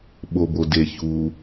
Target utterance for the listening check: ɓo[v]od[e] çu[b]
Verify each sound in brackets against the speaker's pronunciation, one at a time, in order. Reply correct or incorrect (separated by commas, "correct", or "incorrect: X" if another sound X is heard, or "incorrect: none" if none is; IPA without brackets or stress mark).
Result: incorrect: b, correct, incorrect: none